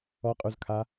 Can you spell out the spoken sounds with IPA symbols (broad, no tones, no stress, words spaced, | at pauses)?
ɔqʼuzkʰa